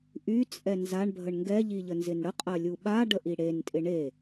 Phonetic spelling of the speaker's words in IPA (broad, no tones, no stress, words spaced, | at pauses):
ʔyt͡sʼɛ nzaɳbʱəɳ ŋɡɛʎiʎənzɪn ɽəqʼɐlʲu ɓaɖəʔi ɽentʼɪ ɳe